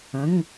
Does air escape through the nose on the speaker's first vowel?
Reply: yes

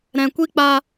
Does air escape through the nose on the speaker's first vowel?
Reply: yes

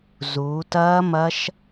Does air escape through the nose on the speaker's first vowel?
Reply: no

